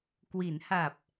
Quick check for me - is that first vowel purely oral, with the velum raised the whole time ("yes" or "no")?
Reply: yes